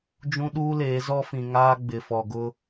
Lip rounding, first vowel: rounded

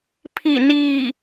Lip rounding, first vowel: unrounded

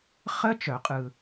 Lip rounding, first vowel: unrounded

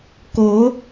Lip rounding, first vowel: rounded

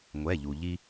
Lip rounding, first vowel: unrounded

